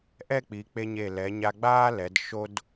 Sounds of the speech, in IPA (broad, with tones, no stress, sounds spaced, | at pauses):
ʔ ɛ˥˧ k͡p i˩˧ k͡p e˧ ɲ e˧˩ l ɛ˩˧ ɲ a˧ ɡ͡b aː˥ l ɛ˩˧ d ʃ o˥ d